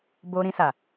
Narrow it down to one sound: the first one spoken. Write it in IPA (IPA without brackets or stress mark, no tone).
b